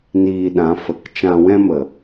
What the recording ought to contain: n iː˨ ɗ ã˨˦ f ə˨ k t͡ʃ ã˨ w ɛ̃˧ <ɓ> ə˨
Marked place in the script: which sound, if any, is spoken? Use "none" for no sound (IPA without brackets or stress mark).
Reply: m